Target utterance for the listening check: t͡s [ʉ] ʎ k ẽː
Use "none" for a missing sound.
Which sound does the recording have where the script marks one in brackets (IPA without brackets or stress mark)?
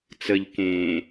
ə